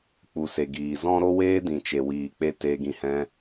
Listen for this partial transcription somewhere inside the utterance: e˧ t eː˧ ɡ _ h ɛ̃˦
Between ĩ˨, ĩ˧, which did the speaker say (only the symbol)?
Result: ĩ˧